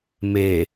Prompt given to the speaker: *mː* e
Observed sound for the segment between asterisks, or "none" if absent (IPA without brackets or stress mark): m